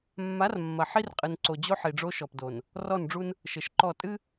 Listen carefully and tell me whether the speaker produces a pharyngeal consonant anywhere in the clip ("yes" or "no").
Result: yes